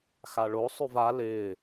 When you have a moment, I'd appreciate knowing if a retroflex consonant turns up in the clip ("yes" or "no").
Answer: yes